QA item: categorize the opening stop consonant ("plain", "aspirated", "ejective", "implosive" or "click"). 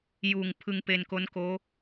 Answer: aspirated